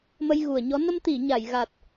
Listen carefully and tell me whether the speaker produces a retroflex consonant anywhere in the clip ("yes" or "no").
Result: no